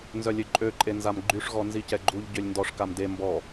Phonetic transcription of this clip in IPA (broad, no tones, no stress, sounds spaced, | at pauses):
n z œ lʲ ø ǃʼ ø ǃʼ e n z a m ɡ͡ǃ y ʂ ɣ ɔ n z i c ɛ ɡ͡ǃ u ʎ ɟ ø lʲ n d ɔ ʂ k a m d e m b ɔ